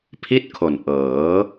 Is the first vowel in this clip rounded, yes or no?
no